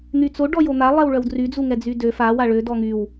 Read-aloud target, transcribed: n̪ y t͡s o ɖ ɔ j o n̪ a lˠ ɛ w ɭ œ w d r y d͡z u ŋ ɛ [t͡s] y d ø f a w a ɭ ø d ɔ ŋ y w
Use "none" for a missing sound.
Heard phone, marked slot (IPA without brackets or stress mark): d͡z